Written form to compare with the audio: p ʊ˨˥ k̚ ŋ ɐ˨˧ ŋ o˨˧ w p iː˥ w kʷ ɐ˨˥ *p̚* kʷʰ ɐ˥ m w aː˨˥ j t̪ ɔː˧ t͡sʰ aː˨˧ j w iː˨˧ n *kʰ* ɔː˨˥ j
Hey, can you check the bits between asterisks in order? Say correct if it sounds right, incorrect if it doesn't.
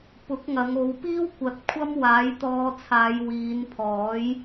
incorrect: t̚, incorrect: pʰ

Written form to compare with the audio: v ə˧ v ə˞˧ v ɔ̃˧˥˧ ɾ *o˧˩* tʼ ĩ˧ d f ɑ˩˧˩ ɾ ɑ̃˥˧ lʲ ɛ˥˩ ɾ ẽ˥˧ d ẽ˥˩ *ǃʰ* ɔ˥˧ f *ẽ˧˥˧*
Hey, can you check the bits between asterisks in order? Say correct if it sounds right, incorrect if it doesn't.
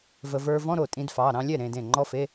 correct, incorrect: ŋ͡ǃ, incorrect: e˧˥˧

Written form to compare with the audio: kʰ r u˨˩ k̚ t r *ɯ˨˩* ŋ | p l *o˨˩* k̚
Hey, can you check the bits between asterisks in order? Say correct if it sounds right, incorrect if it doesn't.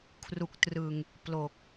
correct, correct

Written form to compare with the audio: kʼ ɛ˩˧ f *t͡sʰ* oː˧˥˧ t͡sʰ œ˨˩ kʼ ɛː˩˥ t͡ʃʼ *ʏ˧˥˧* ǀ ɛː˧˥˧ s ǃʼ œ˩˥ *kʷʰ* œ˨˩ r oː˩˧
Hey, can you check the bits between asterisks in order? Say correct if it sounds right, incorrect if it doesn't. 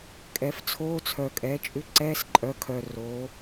correct, correct, incorrect: kʰ

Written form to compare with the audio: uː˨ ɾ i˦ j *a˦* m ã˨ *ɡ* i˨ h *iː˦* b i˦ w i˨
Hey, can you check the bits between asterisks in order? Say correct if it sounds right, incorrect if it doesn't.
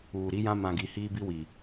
incorrect: ã˦, correct, correct

